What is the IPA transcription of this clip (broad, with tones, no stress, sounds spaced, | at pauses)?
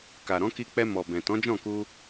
k a˨ ɾ ɔ̃˨˦ k i˧ k͡p ɛ˧ m ɔ˨ b ɛ̃˨ t ɔ̃˨˦ d͡ʒ ɔ̃˦˨ k u˧